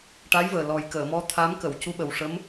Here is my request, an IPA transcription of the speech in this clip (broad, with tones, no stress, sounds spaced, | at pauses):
ʈ a˧˥ j v əː˨˩ l ɔ˨˩ j k əː˨˩˨ m ɔ˧˥ t̪ʰ a˧˥ m k ə˨˩˨ w c u˧˥ ɓ ə˨˩ w ʂ ə˧˥ m